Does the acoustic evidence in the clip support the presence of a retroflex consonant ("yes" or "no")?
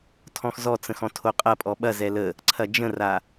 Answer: no